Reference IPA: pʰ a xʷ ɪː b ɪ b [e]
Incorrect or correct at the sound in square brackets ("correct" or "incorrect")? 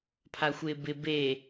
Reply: correct